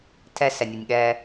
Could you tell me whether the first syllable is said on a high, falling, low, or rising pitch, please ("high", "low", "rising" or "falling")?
high